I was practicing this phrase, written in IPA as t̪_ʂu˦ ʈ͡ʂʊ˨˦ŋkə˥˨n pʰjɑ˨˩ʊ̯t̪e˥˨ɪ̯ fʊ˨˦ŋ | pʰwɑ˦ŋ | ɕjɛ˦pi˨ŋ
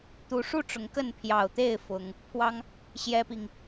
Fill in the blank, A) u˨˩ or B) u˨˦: B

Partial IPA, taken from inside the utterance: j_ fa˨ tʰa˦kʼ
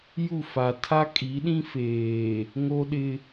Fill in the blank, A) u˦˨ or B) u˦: A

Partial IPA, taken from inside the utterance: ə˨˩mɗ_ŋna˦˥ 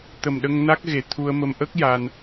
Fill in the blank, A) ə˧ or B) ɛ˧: A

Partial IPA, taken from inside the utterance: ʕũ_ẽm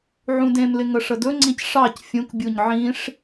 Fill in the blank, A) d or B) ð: A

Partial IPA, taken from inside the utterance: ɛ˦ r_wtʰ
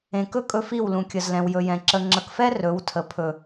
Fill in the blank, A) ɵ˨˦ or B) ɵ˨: A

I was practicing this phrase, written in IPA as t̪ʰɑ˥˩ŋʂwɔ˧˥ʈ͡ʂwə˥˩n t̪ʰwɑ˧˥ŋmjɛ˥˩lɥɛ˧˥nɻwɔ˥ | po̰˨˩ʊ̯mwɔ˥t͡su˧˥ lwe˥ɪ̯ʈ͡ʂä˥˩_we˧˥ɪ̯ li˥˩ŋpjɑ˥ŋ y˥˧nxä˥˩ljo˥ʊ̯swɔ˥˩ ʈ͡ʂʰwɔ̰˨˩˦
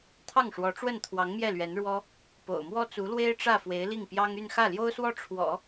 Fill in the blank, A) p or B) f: B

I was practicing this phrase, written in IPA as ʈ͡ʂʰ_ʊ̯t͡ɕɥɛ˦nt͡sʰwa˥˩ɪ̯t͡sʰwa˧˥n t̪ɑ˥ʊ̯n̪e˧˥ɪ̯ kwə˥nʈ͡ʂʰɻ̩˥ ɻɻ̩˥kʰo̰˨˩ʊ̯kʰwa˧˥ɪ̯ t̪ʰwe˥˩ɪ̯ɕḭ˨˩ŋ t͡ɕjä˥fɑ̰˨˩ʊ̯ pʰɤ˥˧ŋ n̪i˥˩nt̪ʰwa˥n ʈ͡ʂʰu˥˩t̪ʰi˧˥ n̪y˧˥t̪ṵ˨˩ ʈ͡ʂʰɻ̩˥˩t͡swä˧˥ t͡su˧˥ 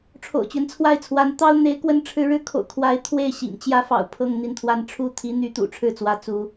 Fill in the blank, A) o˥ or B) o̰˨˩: B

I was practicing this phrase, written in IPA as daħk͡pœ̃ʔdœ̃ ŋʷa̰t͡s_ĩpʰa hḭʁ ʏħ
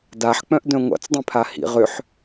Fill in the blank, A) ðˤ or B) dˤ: B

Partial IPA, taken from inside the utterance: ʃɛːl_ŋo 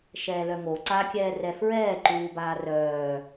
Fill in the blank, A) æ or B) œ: B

